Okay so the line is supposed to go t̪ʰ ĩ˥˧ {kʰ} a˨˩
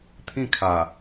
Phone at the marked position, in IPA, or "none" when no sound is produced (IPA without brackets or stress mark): kʰ